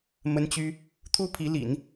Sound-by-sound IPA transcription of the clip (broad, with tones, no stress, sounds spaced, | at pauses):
m ə˥ n t͡ɕ y˥ | t̪ʰ u˥ pʰ i˧˥ l ḭ˨˩˦ n